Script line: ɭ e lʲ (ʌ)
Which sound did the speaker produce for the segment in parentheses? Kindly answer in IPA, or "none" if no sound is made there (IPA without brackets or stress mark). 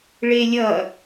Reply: ʌ